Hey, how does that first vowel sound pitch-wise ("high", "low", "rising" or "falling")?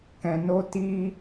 low